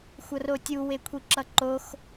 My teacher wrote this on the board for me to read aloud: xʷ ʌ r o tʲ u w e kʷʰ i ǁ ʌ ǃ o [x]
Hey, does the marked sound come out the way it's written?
yes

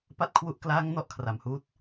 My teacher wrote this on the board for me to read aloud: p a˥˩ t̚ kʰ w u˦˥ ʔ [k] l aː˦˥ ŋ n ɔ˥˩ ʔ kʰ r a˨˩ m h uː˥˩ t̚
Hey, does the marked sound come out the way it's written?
yes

